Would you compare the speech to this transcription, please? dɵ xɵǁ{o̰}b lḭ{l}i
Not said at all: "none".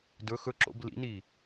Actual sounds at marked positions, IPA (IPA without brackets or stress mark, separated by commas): o̰, n